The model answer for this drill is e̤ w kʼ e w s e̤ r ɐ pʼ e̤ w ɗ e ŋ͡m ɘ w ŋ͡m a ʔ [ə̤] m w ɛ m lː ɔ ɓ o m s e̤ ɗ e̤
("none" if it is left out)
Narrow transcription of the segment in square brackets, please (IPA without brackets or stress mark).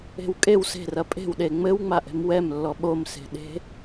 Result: ɛ̤